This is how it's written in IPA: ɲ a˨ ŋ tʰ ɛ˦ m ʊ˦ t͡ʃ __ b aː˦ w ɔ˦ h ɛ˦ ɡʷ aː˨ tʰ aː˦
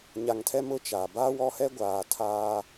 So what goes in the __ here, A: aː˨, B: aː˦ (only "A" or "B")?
A